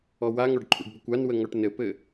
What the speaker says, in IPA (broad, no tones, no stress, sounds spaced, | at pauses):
ɔ w a ŋ ɔ ɖ ǃʰ ṵ ɖ b ɘ kʷ a n w ə ŋ ɔ ʈ n ɘ p ɘ